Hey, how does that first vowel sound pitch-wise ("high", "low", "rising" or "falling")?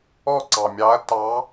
falling